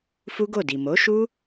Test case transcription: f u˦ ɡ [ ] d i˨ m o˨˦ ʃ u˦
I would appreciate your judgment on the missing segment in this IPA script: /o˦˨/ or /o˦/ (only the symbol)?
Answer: o˦˨